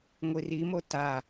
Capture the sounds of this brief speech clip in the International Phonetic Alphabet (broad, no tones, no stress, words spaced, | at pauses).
ŋʷirimo ta